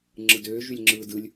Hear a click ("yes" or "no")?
yes